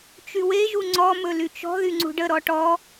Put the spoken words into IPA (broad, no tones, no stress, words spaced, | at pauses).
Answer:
t͡ʃyweʒu ŋ͡ǀɔmɵ lyt͡ʃɔ̤ðy ŋ͡ǀṳɖəɾɔ ʈɔ